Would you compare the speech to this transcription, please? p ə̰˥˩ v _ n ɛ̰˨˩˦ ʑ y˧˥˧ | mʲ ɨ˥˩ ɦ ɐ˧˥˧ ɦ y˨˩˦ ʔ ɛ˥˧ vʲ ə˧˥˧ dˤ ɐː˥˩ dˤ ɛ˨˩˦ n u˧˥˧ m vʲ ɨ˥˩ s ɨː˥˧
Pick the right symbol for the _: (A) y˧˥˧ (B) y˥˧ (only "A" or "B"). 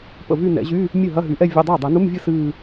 B